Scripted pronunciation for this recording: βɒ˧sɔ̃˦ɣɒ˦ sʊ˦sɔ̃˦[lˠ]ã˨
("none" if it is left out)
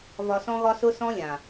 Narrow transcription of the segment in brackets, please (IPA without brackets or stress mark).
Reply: lʲ